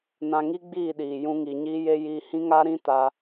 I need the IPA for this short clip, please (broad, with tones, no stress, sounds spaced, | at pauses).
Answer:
n ã˧ ŋ i˦ ɡ͡b iː˦˨ ɗ iː˨ j ũ˦ ŋ i˧ ɲ iː˦ j e˦ j iː˧ h ĩ˦ ŋ a˦ ɾ ĩ˦ t a˧